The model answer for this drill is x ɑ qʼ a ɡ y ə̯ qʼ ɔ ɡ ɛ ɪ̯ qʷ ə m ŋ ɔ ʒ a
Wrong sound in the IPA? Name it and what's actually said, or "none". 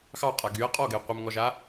none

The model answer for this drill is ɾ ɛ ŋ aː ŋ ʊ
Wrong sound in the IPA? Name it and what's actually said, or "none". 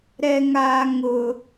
none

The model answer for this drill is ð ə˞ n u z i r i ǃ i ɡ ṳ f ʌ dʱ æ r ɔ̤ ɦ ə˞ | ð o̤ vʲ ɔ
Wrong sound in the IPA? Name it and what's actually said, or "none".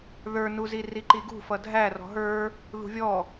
o̤ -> ṳ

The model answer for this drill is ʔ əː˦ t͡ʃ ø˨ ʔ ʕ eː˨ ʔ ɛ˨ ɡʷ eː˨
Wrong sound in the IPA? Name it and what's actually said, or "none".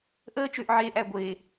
ɛ˨ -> æ˨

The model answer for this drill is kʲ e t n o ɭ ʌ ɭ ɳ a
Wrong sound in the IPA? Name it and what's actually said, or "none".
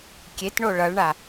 n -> ɳ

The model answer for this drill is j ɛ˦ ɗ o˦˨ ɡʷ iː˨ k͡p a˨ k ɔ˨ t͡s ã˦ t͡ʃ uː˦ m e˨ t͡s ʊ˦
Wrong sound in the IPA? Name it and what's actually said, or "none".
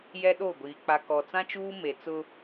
none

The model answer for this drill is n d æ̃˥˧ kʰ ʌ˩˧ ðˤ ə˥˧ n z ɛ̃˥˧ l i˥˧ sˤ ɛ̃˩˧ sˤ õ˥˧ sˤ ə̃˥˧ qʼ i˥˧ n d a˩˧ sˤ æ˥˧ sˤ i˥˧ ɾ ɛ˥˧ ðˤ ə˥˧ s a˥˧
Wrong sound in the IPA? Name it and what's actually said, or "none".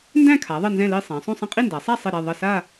ʌ˩˧ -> a˩˧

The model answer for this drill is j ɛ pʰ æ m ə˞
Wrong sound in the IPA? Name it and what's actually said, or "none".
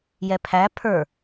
m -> pʰ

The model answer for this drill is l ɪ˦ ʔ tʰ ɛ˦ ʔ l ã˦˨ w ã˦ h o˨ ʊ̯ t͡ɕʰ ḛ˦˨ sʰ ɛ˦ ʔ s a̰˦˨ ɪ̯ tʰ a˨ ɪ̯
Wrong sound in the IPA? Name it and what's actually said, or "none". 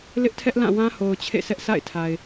none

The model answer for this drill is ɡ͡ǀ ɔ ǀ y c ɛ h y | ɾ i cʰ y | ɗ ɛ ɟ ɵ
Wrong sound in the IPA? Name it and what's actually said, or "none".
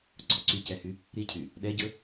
none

